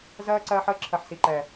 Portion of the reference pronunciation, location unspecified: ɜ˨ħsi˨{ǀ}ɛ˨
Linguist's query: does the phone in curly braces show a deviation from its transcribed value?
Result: yes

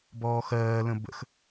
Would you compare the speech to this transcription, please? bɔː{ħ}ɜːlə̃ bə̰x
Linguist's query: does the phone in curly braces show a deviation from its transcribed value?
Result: yes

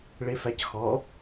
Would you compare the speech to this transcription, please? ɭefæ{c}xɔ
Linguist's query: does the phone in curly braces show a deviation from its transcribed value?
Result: no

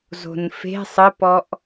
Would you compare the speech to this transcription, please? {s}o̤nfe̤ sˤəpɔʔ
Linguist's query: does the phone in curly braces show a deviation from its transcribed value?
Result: yes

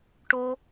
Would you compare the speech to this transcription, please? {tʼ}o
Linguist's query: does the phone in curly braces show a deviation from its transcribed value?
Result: yes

